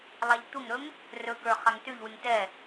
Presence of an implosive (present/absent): absent